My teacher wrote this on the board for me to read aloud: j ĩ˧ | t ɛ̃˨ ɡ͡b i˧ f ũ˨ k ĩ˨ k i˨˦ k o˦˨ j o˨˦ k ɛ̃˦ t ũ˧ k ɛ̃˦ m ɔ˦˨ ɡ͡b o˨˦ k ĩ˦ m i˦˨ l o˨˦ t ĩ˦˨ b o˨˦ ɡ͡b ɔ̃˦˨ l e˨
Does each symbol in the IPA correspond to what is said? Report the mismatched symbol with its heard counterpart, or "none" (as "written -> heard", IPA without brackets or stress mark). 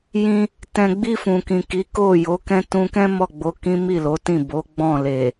none